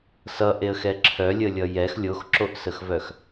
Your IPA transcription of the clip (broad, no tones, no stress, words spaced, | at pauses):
sʌʔeə̯xɛ ǁʰœlʲəlʲʌ jɛx lʲoxǁoʔsəxvœx